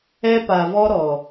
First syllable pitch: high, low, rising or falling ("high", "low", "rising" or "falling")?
high